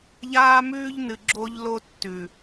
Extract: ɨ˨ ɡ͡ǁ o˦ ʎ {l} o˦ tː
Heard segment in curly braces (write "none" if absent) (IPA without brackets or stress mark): l